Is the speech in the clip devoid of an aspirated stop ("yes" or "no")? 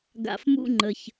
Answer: yes